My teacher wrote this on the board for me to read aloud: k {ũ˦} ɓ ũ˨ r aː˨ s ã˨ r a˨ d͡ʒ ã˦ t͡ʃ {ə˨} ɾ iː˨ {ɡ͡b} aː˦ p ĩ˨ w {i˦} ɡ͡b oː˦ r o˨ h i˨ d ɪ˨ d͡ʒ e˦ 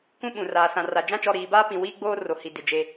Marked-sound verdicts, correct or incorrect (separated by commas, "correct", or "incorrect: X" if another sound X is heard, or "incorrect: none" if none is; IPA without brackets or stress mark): correct, incorrect: ɔ˨, incorrect: b, incorrect: iː˦